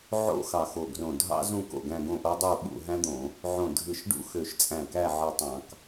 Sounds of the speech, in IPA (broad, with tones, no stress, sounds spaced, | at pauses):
ʕ o̰˥˧ x ɑ˧˩ x o˧˩ ɡ r õ˧˩ dʱ ɑ̰˥ z ũ˥˧ k o̰˧˩ ɡ æ̃˥˧ ɡ õ˥˧ ʔ o˥ dˤ u˥˧ ɓ ṵ˥˧ ɦ æ̃˥ d̪ õ˧˩˧ | ʕ õ˧˩ dʱ ɯ˧˩ ʃ ɖ ṵ˥˧ x ø˧˩ ʃ t͡sʼ æ̃˧˩ k æ˥˧ ʕ ɯ˧˩ tˤ ɑ̃˧˩˧ k